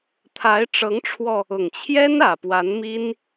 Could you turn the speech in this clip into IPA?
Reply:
t̪ʰa˧˥ɪ̯ʈ͡ʂɤ˧˥ŋʈ͡ʂʰwɔ˧ | ʊ˨˩ŋt͡ɕʰjɛ˥n ä˨˩pwa˧˥nmi˥n

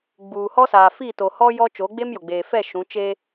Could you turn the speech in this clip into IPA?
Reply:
ɡ͡buː˨hɔ˦saː˨ fi˦˨ to˨hɔ˦ jɔ˦ t͡ʃo˨˦ɡ͡be˦mjʊ˨ɡ͡beː˨ fɛ˦˨ ʃũ˨˦t͡ʃe˦

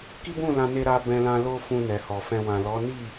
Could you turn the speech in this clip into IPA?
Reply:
ki˦bũ˦˨lã˧ne˧ ɾa˧bɛ̃˧lã˧ lo˦fũ˧ nɛ˨hɔ˨fɛ̃˧ wã˨lɔ˨˦ni˦˨

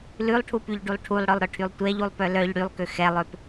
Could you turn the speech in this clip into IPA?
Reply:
lʉlˠʈʰupyʎɖulˠ ʈʰulˠɽœlˠɾœʈʰylˠ tʷɛʎulˠpœ lœʎ ɽylˠkø xɛlˠøp

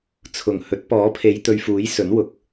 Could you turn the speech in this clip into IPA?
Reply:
t͡sʰʊ˨˩ŋ hɵ˨˥t̚ pɔː˨˥pʰe˨˧jt̪ɵ˨ɥfuː˨˥j sɵ˨˥nwʊ˨˥k̚

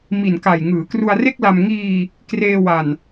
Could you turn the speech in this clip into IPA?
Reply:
mi˨˩nka˨˩j ŋɯː˩˦kru˧a̯re˥˩k̚la˧m ŋiː˧ | kreː˧wa˨˩n

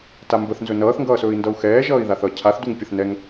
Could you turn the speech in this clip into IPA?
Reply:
tambəθnzɵ nʌːθŋɡʌːsɵːi̯ndʌu̯ xɛːʒʌːi̯ ðaθʌ cʰaθduŋ pʲəθnɛŋ

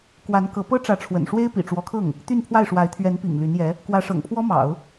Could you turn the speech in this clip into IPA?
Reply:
kwa˧˥nkɤ˧˥ pɤ˥ʈ͡ʂä˧˥ʈ͡ʂʰwə̰˨˩nʂwe˥ɪ̯ pḭ˨˩ʈ͡ʂwɔ˧˥kʰɤ˥˩ŋ | t̪y˥˧npʰwa˥˩ɪ̯ʂwa˧˥ɪ̯ t̪ʰɥɛ˧˥npḭ˨˩ŋ ly˧˥njɛ˧˥ | kwä˧˥ʂɤ̰˨˩ŋpʰwɔ˥mɑ̰˨˩˦ʊ̯

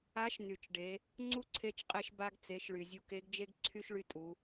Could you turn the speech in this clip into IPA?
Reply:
a˧˥ʃ ny˩t͡ʃɖe˩˧ | ŋ͡ǀu˥ǀʰe˧˥t͡ʃqʼe˧ʃ ba˧ɡt͡se˩˧ʃɭy˩ zʲu˧ke˧˥ɡd͡ʒe˥ɡ ǀʰy˥ʃɭy˧tʼu˩˧

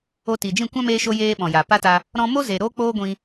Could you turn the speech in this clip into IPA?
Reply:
o˧ti˨d͡ʒĩ˦˨ kʷã˦meː˧ʃo˧ jeː˦ɓɔ̃˨ja˨ pa˦ta˧ | ɾɔ̃˧mo˦ ze˨ɾoː˦k͡poː˦ɡʷĩ˧

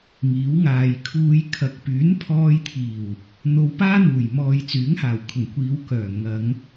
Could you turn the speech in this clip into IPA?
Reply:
ŋiː˨˥wŋaː˨j kʰuː˧jkʰɐ˨˥k̚ pyː˨˥npʰɔː˧jt̪ʰiː˨˩w | n̪o˨˧wpaː˥ n̪uː˨˩j mɔː˨jt͡syː˨˥ŋhaː˨˩wkʰʊ˨˩ŋ kʷiː˨˧wkœː˨˩ ŋɐ˨˧ŋ

